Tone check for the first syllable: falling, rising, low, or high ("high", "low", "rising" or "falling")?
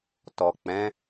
low